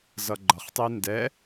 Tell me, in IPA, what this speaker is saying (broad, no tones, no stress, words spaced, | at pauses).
zʌɡ͡ǃʌχtˤi ndɛ